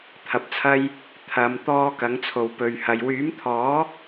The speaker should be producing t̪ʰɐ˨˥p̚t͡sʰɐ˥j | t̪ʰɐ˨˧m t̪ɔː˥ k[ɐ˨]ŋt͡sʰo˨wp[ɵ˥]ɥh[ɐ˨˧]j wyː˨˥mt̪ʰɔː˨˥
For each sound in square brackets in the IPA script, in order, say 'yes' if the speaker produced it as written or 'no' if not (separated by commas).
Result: no, no, no